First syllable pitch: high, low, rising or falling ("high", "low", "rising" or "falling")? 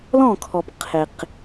falling